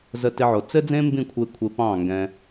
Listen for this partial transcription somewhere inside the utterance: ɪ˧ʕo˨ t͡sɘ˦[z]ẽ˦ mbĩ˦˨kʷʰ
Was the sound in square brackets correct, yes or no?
no